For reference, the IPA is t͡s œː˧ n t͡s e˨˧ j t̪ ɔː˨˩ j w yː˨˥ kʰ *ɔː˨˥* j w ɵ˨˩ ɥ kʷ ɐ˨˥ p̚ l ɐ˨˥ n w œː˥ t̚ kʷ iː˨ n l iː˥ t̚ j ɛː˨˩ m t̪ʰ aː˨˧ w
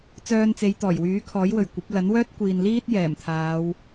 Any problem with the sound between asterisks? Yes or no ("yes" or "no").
no